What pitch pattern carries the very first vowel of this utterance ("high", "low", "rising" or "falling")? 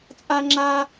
high